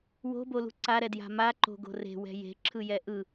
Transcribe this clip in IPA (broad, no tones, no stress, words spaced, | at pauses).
wo̤bolṳ ǀaɾɛdja̤ maǃo̤ɡo̤ re̤wɛ̤ je̤ǁʰɯjɛ ʔɯ